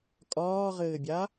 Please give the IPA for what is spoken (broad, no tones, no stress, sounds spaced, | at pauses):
kʼ ɒː ʁ ɘː bʲ a